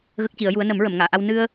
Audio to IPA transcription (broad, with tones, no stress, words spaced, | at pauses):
ɣə˦˥k̚ci˨˩˦ə̯ju˧˥ə̯ nə˨˩˦mɹə˨˩˨mŋaː˨˩˨ʔa˧w nɨ˧ə̯